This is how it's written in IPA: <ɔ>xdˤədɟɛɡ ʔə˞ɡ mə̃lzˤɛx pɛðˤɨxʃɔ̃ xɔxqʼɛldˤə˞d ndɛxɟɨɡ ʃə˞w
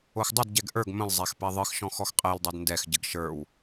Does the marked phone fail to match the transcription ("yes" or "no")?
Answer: yes